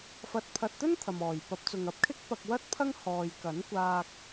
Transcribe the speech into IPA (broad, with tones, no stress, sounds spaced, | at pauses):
f ɐ˨ t̚ pʰ ɐ˨ t̚ t̪ ɵ˥ n t̪ʰ ɐ˨ m ɔː˨˩ j p ɐ˨˥ p̚ t͡s ʊ˨ ŋ ɐ˨˥ p̚ kʰ ɪ˥ k̚ p ɐ˧ k̚ w ɐ˥ t̚ pʰ ɐ˥ ŋ h ɔː˨ j k ɐ˨˥ n kʷ aː˧ k̚